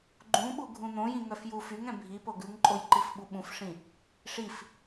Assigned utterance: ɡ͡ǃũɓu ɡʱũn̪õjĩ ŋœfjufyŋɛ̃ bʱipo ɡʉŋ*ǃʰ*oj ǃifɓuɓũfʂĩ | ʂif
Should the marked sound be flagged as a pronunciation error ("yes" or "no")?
yes